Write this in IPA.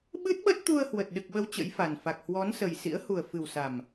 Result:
ɓ ɨ˦˥ t̚ ɓ ə˦˥ t̚ t̪ u˧ ə̯ h w ə˨˩ t̚ ɗ ɨ˨˩ k̚ ɓ ə˨˦ w t͡ɕ ə̰˧˥ j f a˨˩ n f a˨˩ k̚ h w ɔ˨˦ n s ə˨˩ j s ḭ˧˥ ə̯ h u˨˩ ə̯ f ɨ˨˩ w s a˨˩ m

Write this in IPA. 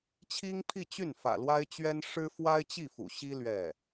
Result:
t͡ɕʰ i˥ ŋ pʰ i˥˧ t͡ɕ y˥˩ n f ä̰˨˩ l w a˥ ɪ̯ t͡ɕ ɥ ɛ˥ n ʂ ɻ̩˥ f w a˥ ɪ̯ t͡ɕ i˥˩ f ṵ˨˩ ɕ i˥ l ɥ ɛ˥˩

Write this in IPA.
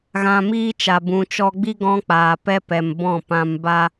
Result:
ɣ ã˧ m iː˦ t͡ʃ a˨ b ũ˨ t͡ʃ ɔ˧ ɡ͡b i˦ ɡ ɔ̃˦ k͡p aː˨ p ɛ˦ p ɛ˨ m b ɔ̃˦˨ p ã˧ m b a˦

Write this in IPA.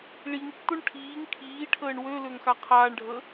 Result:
ɭ i ŋ tː o ɳ ʈʰ iː ŋ kʰ iː ʈʰ əː ɳ w ø l ø ŋ x a qʰ aː ɳ ɖʱ ə

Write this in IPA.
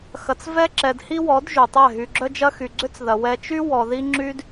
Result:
x ɐ˨ t͡s v ɛ˦ ǁ ɛ˨ d h i˦ w ɔ˨˦ d ʒ y˨ tˤ ɛ˦˨ ɦ y˨ ɡ͡ǁ œ˦ d͡ʒ ɐ˦ x y˨ ɡ͡ǀ ʏ˦ t͡s ð ɐ˨ w ɛ˨ t͡ʃ y˦ w ɔ˨ ð i˦ ŋ͡ǁ y˦ d

